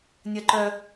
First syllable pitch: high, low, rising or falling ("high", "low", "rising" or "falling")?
high